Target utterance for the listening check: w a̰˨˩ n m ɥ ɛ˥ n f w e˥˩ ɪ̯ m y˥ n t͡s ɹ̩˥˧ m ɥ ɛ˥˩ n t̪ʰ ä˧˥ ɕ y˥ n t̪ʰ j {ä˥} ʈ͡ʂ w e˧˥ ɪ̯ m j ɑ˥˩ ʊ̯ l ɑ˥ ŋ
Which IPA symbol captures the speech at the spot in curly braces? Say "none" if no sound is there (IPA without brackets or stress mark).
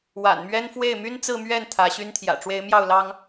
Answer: ä̰˨˩